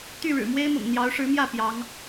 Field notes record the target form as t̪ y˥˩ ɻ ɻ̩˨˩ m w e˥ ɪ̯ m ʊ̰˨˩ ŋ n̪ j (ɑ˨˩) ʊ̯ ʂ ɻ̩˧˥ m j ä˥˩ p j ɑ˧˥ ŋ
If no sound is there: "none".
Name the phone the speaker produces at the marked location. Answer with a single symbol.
ɑ˧˥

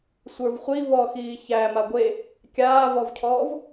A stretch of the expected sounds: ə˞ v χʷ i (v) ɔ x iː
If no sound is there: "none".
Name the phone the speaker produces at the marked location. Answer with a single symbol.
v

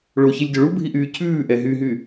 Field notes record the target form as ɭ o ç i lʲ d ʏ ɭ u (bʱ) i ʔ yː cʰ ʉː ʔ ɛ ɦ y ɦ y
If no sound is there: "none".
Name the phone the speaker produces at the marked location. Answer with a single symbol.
bʱ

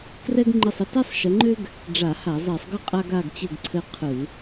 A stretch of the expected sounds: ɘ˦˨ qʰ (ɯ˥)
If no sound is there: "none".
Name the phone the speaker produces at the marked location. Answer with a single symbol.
ɯ˧˩˧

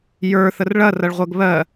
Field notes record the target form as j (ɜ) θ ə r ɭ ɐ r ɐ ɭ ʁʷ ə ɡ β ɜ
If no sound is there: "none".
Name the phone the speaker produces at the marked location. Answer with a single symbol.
ə˞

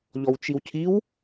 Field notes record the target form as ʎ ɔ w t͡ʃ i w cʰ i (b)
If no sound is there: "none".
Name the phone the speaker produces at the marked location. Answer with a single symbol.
w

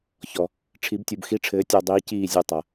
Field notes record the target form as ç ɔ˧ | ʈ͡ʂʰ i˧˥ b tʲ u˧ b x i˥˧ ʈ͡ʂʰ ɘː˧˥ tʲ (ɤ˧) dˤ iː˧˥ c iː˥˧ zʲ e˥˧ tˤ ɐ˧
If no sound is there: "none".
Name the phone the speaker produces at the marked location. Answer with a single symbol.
ɔ˧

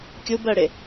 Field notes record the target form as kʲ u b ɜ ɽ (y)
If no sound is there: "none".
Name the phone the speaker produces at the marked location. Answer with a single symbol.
ɪ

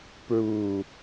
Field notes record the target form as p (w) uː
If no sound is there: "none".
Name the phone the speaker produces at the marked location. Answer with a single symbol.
ɹ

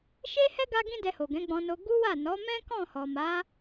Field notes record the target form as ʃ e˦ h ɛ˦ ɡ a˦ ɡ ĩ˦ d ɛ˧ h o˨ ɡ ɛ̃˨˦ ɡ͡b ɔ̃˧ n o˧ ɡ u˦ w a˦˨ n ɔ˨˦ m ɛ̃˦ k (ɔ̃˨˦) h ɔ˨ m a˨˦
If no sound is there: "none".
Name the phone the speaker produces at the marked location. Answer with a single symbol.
ɔ̃˦˨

